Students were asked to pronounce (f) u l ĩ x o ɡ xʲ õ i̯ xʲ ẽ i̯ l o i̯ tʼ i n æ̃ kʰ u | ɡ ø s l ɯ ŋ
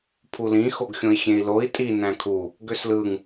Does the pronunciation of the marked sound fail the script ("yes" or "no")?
yes